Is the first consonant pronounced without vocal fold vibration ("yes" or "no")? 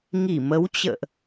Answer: no